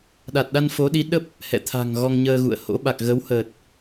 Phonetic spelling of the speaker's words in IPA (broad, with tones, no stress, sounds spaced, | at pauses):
ɗ a˨˩ t̚ ɗ a˧ n f o˨˦ ɗ i˨˦ ɗ ə˦˥ p̚ | h ɛ̰˧˨ t̪ʰ a̤˨˩ ŋ ɣ ɔ˧ ŋ ɲ əː˧ ɣ ṵ˧˨ ə̯ h o̰˧˥ ɓ a˨˩ k̚ ɣ ə˨˦ w h ə˨˩ t̚